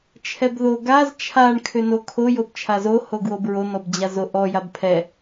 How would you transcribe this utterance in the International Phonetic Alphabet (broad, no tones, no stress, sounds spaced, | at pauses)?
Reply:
t͡ʃʰ ɛ b ð o ɡ a z t͡ʃʰ a ɳ kʰ ʏ n o kʰ o j o b t͡ʃʰ a z o h o ɡ w o b ɹ o n ɔ b d͡ʑ a z o ʔ ɔ j a b pʰ ɛ